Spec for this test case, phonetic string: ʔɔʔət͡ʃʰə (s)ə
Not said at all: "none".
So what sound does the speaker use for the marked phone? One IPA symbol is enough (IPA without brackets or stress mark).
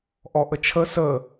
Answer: s